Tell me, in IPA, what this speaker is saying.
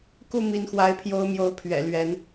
ku˥˨mi˨˦nxwa˨˦ɪ̯ pʰjo˦ʊ̯mjo˨˦ʊ̯pʰɥɛ̰˨˩ lɥɛ˨˦n

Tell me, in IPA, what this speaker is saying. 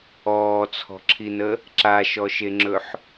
ɔːt͡sʰɔ̤ǁʰinə | ǁaʃɔʃeŋ͡ǁɵħ

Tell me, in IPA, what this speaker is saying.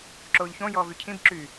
ǁoːʎçõ jɔːvycʰĩb ǁy

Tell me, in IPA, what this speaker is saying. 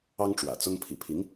ɑ˥ŋʈ͡ʂwä̰˨˩t͡sʊ˥ŋ pʰḭ˨˩pʰi˧˥ŋ

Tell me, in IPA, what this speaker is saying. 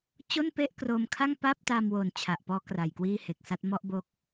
t͡ɕo˥˩npe˥˩ʔkroː˧mkʰa˥˩ŋ pa˥˩p̚ta˧mwo˨˩n t͡ɕʰa˨˩ʔpɔː˦˥kra˨˩j kwiː˥˩he˨˩k̚sa˦˥t̚ mɔ˥˩ʔbo˦˥k̚

